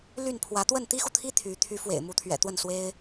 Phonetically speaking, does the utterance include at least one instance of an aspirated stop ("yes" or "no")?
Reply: yes